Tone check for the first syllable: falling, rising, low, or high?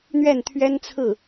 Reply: falling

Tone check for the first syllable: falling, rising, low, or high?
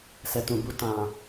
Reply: low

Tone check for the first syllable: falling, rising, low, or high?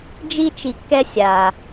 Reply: high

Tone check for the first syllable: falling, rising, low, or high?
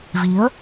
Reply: rising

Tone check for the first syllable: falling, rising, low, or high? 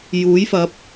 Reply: rising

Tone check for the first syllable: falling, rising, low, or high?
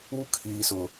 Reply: high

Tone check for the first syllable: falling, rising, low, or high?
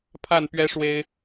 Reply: falling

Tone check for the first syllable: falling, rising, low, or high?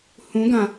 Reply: rising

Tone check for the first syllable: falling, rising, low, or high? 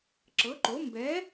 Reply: rising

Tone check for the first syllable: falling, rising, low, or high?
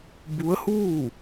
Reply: rising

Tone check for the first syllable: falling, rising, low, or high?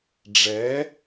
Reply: rising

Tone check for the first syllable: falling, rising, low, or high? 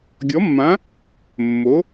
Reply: rising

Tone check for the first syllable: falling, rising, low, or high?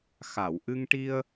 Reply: low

